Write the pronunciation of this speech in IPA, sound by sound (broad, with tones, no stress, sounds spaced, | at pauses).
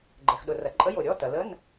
ɡ͡ǃ ɛ˩ x ɗ ʊ˩ r ɐ˩ ǃʼ ə˧˥˧ j o˩ ɾʲ ɔ˧˥˧ t ɐ˩ l ə˧˥˧ n